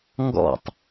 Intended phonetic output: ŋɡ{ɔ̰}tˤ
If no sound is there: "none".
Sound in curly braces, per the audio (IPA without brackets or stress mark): ɔ̰